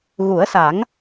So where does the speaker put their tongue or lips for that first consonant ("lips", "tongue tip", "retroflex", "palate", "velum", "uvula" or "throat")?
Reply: velum